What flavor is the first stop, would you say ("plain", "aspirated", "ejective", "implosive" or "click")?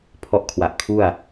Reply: aspirated